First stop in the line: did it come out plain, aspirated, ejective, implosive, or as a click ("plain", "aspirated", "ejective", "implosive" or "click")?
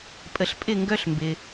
ejective